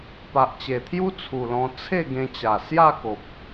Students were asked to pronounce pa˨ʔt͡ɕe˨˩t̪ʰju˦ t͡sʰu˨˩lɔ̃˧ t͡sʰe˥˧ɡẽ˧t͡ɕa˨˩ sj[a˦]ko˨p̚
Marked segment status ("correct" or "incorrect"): incorrect